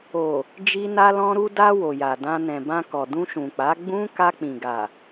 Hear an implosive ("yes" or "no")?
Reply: no